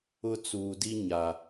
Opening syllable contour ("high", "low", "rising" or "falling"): high